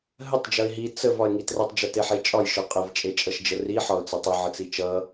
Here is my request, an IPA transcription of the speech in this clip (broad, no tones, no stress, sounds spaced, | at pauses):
ɦ ə tˤ d͡ʒ ʌ ɪ̯ ɦ i t͡s ə v ɒ ɪ̯ ŋ i t r ʌ tˤ d͡ʒ ʌ t e ħ e t͡ʃʼ ɒ j ʃ ɒ qʼ ə v t͡ʃʼ e t͡ʃʼ ʌ ʃ d͡ʒ ə r i ħ ɒ ʊ̯ t͡s ʌ tˤ ʌ ʕ ə t͡s i t͡ʃ ʌ